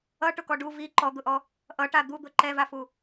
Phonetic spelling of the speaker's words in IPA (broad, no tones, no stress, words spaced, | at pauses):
ʌʈʊkɔ ɖu vi ǃɔd̪ʊʔɔ | ʔʌʈa d̪ud̪ʊ ǃɛvafu